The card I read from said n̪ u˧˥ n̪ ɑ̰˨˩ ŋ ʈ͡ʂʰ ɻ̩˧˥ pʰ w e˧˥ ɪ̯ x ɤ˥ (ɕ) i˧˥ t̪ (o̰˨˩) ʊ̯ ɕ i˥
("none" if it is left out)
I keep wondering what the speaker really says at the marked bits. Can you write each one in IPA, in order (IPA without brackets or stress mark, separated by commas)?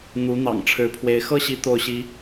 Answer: ɕ, o˥˩